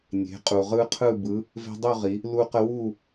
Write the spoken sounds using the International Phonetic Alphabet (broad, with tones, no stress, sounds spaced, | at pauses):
nʲ e̤˩˧ qʼ u˩ ʁ ɯ˦ qʰ ɯ˥˨ b ɯ˨˥ | v e̤˦ dˤ u˥˨ ʁ i˩˧ | l u˦ q ə˦ w u˥˨